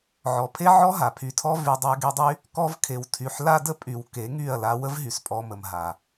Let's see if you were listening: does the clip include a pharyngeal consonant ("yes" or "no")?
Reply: yes